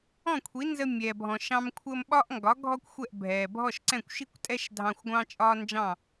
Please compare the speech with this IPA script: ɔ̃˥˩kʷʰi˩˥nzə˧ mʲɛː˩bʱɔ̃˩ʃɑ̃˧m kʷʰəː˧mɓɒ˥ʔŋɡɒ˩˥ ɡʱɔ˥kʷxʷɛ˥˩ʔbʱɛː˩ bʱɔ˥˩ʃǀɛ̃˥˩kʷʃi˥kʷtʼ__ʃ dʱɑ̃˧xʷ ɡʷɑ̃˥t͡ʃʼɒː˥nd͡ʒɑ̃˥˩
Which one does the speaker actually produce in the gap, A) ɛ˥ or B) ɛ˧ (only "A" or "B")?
A